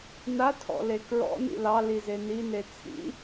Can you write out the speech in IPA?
natʰɔ̰le kɹɔ̰nḭ lɑlize nine t͡sʰḭ

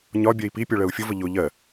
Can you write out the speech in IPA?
ɲɒbʲɛi̯ pipʲɔɭɜu̯ fʲʊvə ʎʊ ʎɜ

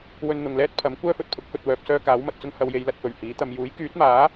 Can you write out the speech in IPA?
wɵ˧nn̪ʊ˨ŋlɛː˥t̚pʰɐ˨˥m kʷœː˥fɵ˨t̚pʰʊ˨˥k̚ fɵ˧t̚wœː˧p̚sœː˥ kaː˨˥wmɐ˨t̚ t͡sʊ˥ŋhɐ˨˧wje˨˧j lɐ˧t̚fɵ˨˩ɥhiː˨˥t̪ɐ˨˧m juː˨˥jkyː˨˥t̚maː˨˥

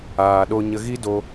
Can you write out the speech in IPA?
aː˧ɗo˦ ɲə˧ɣi˦do˧

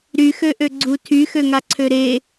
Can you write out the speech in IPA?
ɾyxøʔøɡ͡ǀu tʰyxøŋaǀʰø ɾe

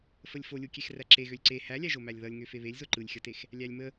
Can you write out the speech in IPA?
fəlʲfolʲukʲex ræǁeɣølʲ ǀe hælʲæʒomælʲ ðʌlʲ ŋøfeβelʲzo ǃɯlʲxʲʌtex | lʲælʲmə

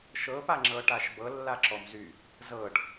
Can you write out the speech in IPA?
ʃɤpaŋ͡ǁɤ ʈaʃbɤ lːaǁɔmzy | zɤɖ

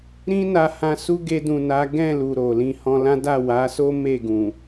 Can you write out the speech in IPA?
ɾĩ˦na˧ hã˧su˦ ɡe˧dũ˨na˨˦ ɡɛ̃˦˨lu˨ ɾo˨ lĩ˧hɔ̃˧lã˦ da˦˨wa˨˦so˦ me˦˨ɡũ˨

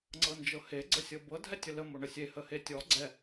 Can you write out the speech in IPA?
ŋ͡ǀɤnd͡ʒɤhe ɡ͡ǀəsʲɤbɤ dʱɛtʲələ moɳəsʲe həhetʲɔ ɡ͡ǀɛ

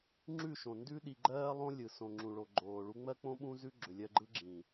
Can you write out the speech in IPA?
ŋ͡ǁʉ˦˨ʃõ˨ ndʉ˦ɗi˧ɡ͡ǃɜː˦ lˠõ˦ lʲɯ˨sõ˨ŋ͡ǁũ˨ɭo˨ ɡ͡ǃoː˨ ɭu˧ŋ͡mɜ˦k͡põ˦ ɓũ˦zʉ˦ɡ͡ǁʏ˨ lʲɜ˧ɡ͡ǃɯ˦ɡ͡ǁĩː˨

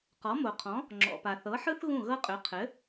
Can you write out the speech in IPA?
qɔ˩˥mo˩qʰɔ̃˩˥ | ŋ͡ǁɔ̰˩ pa˩ θɤ˩˥ħɯ˥θ ɣũ˥˩ɣɤ˥qʼʏ˩˥ qʰɘ˩˥

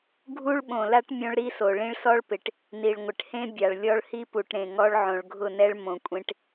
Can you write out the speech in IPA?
ɡʱu˦ɭɓõ˨la˦ʈ mʲõ˦ɭɾi˦so˨ ɭĩ˦ɭsɔ˦ɭpɪ˨ʈ | ni˨ɭŋʷɪ˨ʈhẽ˦ bʲa˨ɭlʲɔ˦ɭhi˦ pu˨ʈɾẽ˨ ŋɔ˦ɭ ʕõ˨ɭɡʱʊ˦˨nɛ˦ɭ mõ˨kʷʼẽ˦ʈ

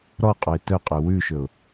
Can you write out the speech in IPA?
ɾɔqʼoɪ̯ tœqʼø wʉʃɵʊ̯

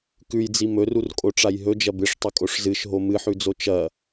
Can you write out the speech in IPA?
kʉjd͡zi mɵrurkʼoʈ͡ʂaj ɦɵd͡ʒɐ bɨʂtˤɵkʼoʂ zɨʃɦo mɨħʉd͡zo t͡ʃɐ

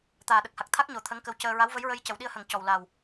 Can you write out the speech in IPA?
t̪aː˨˩ɗə˨˩k̚ha˨˩k̚ t̪ʰa˦˥k̚ɲo˨˩˨ t̪ʰə˧˥ŋkə˧wcəː˧ ɹa˧˥wvə˧˥jɹə˧j cə˨˩˨wɗi˧ə̯hə˨˩˨ŋ cɔ˨˩wla˨˩w

